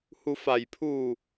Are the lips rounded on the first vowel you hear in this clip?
yes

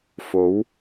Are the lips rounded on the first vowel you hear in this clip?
yes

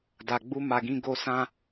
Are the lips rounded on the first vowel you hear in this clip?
no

